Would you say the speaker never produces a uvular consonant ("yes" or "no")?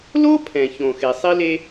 yes